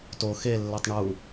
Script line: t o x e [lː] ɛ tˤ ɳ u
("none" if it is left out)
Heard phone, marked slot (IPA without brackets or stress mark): lː